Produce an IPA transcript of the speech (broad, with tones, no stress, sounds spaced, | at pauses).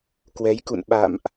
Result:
k w ɛ˨˦ j k ṵ˧˨ n ɓ a̰˧˨ m ʔ